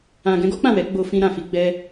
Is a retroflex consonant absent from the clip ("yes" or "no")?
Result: yes